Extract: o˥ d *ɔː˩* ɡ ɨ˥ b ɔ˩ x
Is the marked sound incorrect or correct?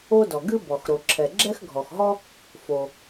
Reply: incorrect